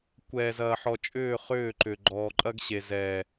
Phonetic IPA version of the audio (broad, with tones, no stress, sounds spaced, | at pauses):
kʷ ɛː˨ z ɐː˨ ħ ɔ˨ t͡ʃʼ ʏː˦˨ χ ʏː˦˨ ǃ ʏ˨ ɡ͡ǃ ɔː˨ ǃʼ ɐ˦ ɡ ɕ e˨ z ɛː˨